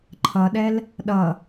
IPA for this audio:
ǃʰ ʌ ɗ ɛ l | ɗ ʌ

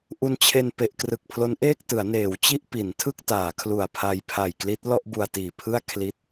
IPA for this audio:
ʔ u˧ n t͡ɕʰ e˧ n p e˨˩ ʔ k r ɯ˨˩ k̚ pʰ l o˦˥ n ʔ eː˥˩ k̚ t ɯ˩˦ a̯ n eː˩˦ w t͡ɕ i˥˩ ʔ p i˩˦ n tʰ ɯ˥˩ k̚ t aː˩˦ kʰ l u˨˩ a̯ pʰ a˧ j pʰ a˨˩ j k l i˦˥ t̚ l ɔ˥˩ ʔ b u˧ a̯ t iː˨˩ pʰ ɯ˥˩ a̯ kʰ l i˥˩ t̚

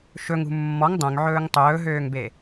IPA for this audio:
ʃ ɵ ŋ ṳ mː ɔ ŋ dˤ œ̃ ŋ ʕ ɵː ŋ tˤ ɵː ɦ øː ŋ b e

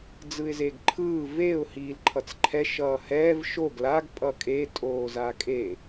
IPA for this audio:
d͡z ɯ ɪ̯ z e ɡ ǃʰ ɯː v e ʊ̯ h iː l ǃʰ ʌ t͡s ǃʰ ɛ ʃ ʌː h ɛː v ʃ o ɡ l a ɡ pʼ ʌ kʼ e tʼ oː z a kʼ e

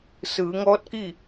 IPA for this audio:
s ɯː˩˧ ŋ ɔː˧˥ t̚ k i˥˨

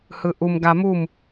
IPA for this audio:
h ɯ ʔ u m ɡ a m u m

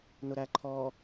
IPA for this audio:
n ʊ ɾ æ ǃʰ ɔ

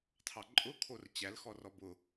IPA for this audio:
tʰ ɑ ǃʼ ʊ kʰ o r t͡ɕ æ l x ɔ r ɔ b ʊ

